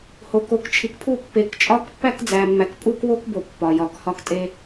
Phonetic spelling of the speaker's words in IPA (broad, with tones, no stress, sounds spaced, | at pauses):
h o˨ k o˨ k t͡ʃʰ i˨ k pʰ u˦˨ pː e˨ k t͡ʃʼ ɒ˦ k pː æ˦ k d͡z æ˨ mː æ˨ k pʼ u˦ k w o˦ k b o˨ pː ɒ˨ j ɒ˨ k h ɒ˦ k tʼ e˦